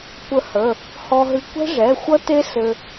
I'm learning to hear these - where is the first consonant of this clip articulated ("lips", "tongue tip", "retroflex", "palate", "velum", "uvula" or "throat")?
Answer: velum